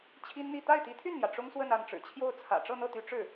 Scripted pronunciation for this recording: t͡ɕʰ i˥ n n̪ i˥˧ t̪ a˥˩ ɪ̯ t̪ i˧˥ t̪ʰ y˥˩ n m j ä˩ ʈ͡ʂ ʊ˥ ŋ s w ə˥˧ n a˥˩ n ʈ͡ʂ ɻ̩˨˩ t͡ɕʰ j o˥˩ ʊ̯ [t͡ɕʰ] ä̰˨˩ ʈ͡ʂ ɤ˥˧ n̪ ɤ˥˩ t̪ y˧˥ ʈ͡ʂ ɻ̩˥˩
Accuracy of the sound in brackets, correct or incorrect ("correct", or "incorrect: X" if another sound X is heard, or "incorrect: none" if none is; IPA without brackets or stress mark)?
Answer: incorrect: t͡sʰ